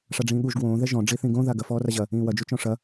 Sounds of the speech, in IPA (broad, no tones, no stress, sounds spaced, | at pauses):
ʂ a ɖ͡ʐ ĩː ɠ u ʒ ɡ w õː ð ɛ ʒ ɔ̃ ɖ͡ʐ i θ ĩ ɡ õ ð a ɡ ɐ f ɔː r a ʑ ɐ | ĩː w ɐ d͡ʒ u t͡ʃ ɔ̃ ʂ ɐ